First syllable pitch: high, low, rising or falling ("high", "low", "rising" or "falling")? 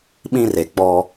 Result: high